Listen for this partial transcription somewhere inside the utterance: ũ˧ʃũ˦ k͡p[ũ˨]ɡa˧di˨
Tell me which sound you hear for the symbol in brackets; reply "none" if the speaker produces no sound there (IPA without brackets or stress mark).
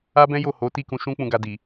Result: ũ˧